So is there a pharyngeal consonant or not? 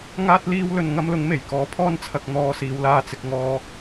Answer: no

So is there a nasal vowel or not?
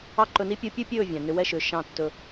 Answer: yes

